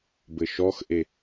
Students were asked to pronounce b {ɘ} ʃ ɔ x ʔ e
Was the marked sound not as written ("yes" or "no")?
no